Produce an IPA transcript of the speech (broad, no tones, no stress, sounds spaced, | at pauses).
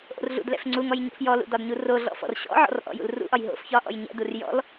ʔ o̰ r ɮ ṵ d l ɛ̰ f ŋ͡ǀ u ŋ ɔ j ɲ o̰ f j ɔ l ṵ d ɒ d ɲ u r o ɮ ɔ̰ f ɔ̰ r ɕ ɔ̰ ʕ ɔ̰ r ʔ ɔ̰ j ṵ l r ṵ ʔ ɒ j ɦ o̰ f ç ɒ ʔ ɔ̰ j ɲ ɛ̰ d u r j ɔ̰ l